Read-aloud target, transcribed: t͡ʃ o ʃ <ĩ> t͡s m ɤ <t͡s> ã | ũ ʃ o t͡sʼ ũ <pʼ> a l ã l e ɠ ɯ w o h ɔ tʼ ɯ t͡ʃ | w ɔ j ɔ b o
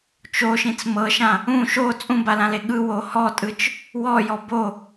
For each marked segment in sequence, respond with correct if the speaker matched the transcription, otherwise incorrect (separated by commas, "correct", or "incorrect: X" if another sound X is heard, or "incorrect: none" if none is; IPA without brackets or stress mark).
correct, incorrect: ʃ, incorrect: b